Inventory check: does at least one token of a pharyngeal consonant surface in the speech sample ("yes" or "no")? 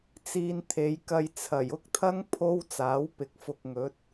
no